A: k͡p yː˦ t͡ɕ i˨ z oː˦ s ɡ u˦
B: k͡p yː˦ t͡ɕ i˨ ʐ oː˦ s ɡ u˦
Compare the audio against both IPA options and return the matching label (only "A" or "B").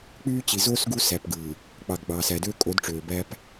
A